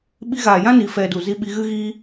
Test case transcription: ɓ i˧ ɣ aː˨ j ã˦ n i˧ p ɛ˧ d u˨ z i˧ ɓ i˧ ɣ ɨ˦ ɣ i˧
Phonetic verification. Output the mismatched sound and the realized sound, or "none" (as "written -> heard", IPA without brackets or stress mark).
p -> f